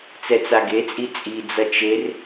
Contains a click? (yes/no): no